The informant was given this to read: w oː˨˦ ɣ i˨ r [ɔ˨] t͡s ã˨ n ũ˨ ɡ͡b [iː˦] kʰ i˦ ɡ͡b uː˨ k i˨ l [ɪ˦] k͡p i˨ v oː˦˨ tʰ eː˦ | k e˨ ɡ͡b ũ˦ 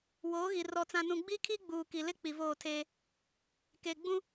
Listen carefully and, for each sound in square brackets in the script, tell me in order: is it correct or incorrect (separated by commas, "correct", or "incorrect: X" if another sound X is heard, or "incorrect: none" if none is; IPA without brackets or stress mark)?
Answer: correct, incorrect: i˦, correct